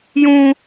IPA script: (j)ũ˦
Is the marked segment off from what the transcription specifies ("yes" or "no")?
no